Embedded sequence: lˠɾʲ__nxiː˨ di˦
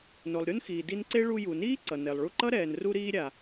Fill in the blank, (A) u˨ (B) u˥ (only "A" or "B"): B